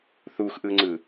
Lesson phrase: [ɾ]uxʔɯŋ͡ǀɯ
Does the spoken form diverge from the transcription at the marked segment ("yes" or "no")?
yes